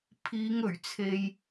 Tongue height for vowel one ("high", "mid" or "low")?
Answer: high